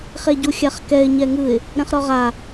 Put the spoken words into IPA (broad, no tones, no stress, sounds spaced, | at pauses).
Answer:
χ e ɟ u xʲ a χ k ɛ ɪ̯ ɲ ɛ ŋ ɯ ɪ̯ | ɾ ɛ̃ χ ɾ ɔ ʁ a